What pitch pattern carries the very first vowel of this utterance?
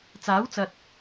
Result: rising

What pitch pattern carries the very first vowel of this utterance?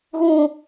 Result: low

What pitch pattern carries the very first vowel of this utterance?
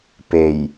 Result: low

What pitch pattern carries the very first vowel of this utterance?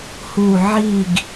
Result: falling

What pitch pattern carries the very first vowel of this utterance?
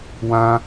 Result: high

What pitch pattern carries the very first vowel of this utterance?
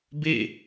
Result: falling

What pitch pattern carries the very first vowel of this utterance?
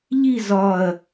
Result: falling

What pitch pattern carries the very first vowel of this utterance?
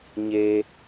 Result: high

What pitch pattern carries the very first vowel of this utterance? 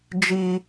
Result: high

